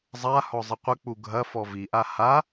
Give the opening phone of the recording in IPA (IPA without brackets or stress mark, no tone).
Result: zˤ